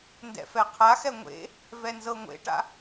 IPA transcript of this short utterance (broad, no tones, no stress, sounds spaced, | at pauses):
n d ɛ̰ f ɛ qʰ a x ɛ ŋʷ ḛ | v ɛ n z ɤ ŋʷ ḛ ʈ a̰